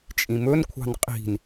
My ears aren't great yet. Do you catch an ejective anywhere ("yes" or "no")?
yes